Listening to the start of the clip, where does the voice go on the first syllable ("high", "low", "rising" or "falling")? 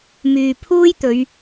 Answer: low